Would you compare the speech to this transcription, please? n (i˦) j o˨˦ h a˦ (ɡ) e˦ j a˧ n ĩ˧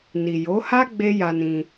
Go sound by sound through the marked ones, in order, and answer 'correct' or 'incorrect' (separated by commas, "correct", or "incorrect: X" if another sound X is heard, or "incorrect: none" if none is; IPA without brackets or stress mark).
incorrect: i˨, incorrect: ɡ͡b